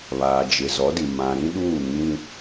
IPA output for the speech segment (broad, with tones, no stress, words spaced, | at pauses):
βaː˨d͡ʒɪ˨ zɔ˨˦di˨ mã˨ɾĩ˦ɗuː˦˨ŋĩ˦